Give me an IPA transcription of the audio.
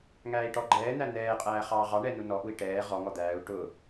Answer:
ŋ æː i̯ ʈ ɔ ɡ͡ǃ ɛː n̪ æ n̪ ɛː qʼ æː χ ɑː ʁ ɑ ɳ ɛ n u n ɔ ʔ u i̯ ʈ ɛː ʁ ɔ ŋ ɔ d̪ æː u̯ ʈ ʊ

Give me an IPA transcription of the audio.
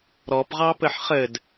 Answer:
ɾ ɔ p ʁ ɑ p ɘ ħ χ ɘ d

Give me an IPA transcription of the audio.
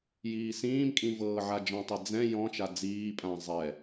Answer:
j iː s ĩː m kʼ ĩ v ɤː ʕ a d͡ʒ ɔ̃ tˤ ɛ d͡z ɛ̃ j ɔ̃ t͡ʃ a d͡z iː pʼ ã zˤ ɛ

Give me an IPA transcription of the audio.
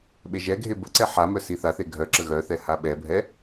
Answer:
ɓ e ʒ ɛ ɡʱ e b ə ǀ ɛ ħ a m œ s i θ a θ e ɡʱ œ ǁ ə ɣ œ θ ɛ h a ɓ ɛ bʱ ɛ

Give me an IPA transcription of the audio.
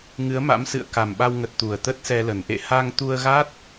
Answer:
ŋ ɨ˨˦ ə̯ m a̰˧˥ m s ɨ̰˧˨ ə̯ k a˨˩ m ɓ a˧ w ŋ ə˨˩ t̚ t̪ u˨˩ ə̯ t̪ ə˦˥ t̚ s ɛ˧ l ə˨˩ n ʔ ḛ˧˨ h a˧ ŋ t̪ u˧ ə̯ ɣ a˦˥ t̚

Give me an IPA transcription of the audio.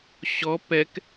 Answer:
ɕ ɔ p ɛ k

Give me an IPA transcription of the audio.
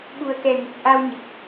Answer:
ɓ u˨˩ ə̯ k ɛ˨˩ ŋ u˨˩ k̚ ʔ a˧ w ɲ ə˨˩ k̚

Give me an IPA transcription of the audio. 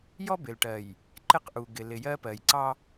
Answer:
j ɔ˦ b ɪ˨ l ʈ ɜ˨ j | ǃ ɪ˦ q ʔ u˨ ɡ ɪ˨ l ɪ˨ j ɜ˦ p ɜ˨ j ǀ ɑ˦

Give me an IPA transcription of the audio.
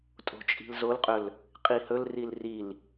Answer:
tʼ o̤ t͡ʃʼ i̤ l z o l qʼ ɵ l | qʼ i h ɵ l r i l r i l

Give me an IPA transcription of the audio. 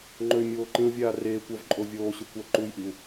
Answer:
ŋ͡ǃ ɵ y̯ mʲ oː ǃ ĩ u̯ vʲ aː r eː kʷ a v ǃʼ o vʲ oː ɕ ø kʷ a ǃ u j ʔ i u̯

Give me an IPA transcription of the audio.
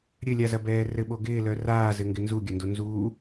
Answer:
ɾʲ ɘ lʲ a z ɐ b ɛː r ɘ ɓ o ɡ ɪː l œ r aː z ɘ ŋ ɡ ɪ n z u ɡʲ ɐ n d o n z uː

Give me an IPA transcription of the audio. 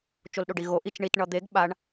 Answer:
t͡ʃ o l ɗ o ɖ i ɣ o ʔ i t͡ʃ ɳ i t ɳ ʌ d̪ e ɡ ɓ a ɳ

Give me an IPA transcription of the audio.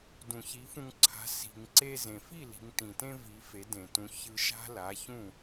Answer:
d ũ˩ ç i˩˥ f ũ˧ ŋ ǀʰ a̤˩˥ s i̤˩ ŋ ǀ e˧ z ẽ˩ f i˥˩ l i̤˩˥ ŋ t ĩ˩ t ẽ˥ v i˩˥ f e˩˥ d ẽ˩ t ũ˩˥ ç ɯ˧ ʃ a̤˥ l a˩˥ ç ũ˥˩

